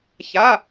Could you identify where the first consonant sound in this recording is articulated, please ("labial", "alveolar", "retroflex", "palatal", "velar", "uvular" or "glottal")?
palatal